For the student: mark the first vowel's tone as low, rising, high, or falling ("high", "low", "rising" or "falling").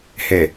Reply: low